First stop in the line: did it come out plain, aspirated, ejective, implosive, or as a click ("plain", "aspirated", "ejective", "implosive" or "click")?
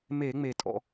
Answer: ejective